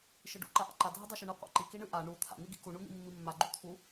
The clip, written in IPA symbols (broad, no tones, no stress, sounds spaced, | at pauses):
ʃ ɨ ɖ ṵ ǃ a ʔ a̰ ǃ a dʱ ɨ dˤ a ʃ u ɳ ɨ qʷ a̰ ǃ i k i ɳ ɨ ʔ a ɳ u t̪ʰ a̰ n̪ i ɡ ḭ k u ɳ u n̪ ḭ mː i mː a ɡ͡ǃ u t̪ʰ u